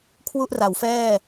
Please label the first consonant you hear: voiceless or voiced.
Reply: voiceless